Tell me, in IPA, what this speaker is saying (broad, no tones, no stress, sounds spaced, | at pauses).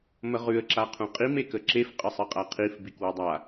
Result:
m ə ʁ ʉ ə̯ ǁ a qʰ ũ qʼ i m e k ə ǁ e f qʼ ə sˤ ɨ qʼ a qʰ i f b i k w u dˤ a